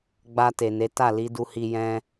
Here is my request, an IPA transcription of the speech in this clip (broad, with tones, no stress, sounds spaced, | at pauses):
ɡ͡b a˧ t e˨ n e˨˦ t a˦˨ l i˨˦ d u˧ h i˧ j ɛ̃˧